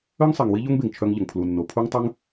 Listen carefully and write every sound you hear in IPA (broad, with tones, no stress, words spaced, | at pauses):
œ˦ŋsˤe˨ŋ wi˦ʎo˦ŋbe˨ŋ t͡ʃʰœ˧ŋʎə˨ŋ pʰlu˨nːo˨ pʰu˦ŋtˤœ˦ŋ